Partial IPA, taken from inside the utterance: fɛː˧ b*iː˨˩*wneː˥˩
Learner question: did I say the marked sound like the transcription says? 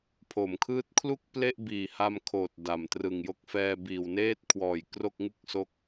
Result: yes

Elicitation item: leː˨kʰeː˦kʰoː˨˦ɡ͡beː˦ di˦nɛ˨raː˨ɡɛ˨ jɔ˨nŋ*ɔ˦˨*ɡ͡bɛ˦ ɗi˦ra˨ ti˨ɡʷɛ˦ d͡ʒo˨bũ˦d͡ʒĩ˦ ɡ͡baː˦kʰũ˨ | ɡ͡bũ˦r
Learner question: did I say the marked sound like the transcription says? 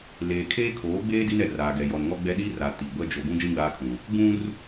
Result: no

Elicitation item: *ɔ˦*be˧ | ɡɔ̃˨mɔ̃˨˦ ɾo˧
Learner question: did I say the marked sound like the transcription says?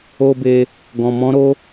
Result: no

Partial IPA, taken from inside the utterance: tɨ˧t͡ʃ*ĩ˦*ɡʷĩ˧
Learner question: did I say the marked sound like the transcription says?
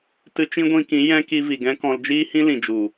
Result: yes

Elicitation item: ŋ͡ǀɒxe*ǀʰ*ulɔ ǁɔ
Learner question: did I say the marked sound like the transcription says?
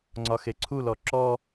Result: yes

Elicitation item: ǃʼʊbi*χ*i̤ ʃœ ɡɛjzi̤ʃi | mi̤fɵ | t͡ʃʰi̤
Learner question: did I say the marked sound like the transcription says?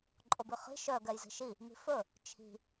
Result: yes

